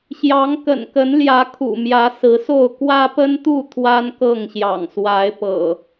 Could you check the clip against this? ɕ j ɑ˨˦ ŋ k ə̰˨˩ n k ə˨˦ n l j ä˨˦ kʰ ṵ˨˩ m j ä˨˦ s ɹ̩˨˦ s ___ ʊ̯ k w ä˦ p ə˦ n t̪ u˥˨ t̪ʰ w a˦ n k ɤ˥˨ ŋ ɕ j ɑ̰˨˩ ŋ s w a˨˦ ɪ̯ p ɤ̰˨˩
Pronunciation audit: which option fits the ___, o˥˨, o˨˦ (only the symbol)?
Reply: o˥˨